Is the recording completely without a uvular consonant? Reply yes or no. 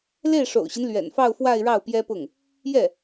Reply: yes